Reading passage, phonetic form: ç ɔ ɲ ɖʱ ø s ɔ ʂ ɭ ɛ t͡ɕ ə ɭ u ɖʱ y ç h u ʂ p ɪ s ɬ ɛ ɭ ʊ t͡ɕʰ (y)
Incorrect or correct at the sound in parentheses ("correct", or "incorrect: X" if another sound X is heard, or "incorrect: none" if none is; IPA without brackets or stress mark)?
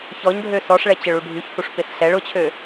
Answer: incorrect: ø